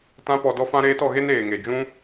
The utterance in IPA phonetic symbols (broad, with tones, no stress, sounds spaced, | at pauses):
t ã˦ p ɔ˧ d ɔ˦ f ã˦ ɾ eː˦ t ɔ˧ ɣ e˦ n eː˨ ŋ e˨ d͡ʒ ũ˦